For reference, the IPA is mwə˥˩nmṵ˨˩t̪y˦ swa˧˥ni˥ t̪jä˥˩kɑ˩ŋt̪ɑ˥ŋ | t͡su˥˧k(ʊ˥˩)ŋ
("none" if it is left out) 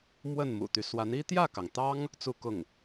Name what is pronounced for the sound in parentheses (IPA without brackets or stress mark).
ʊ˥˩